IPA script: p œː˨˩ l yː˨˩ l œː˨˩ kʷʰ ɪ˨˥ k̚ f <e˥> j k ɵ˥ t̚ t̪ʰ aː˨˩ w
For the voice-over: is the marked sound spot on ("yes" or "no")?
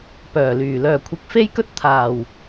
yes